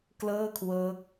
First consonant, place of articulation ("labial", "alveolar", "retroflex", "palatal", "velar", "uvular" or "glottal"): velar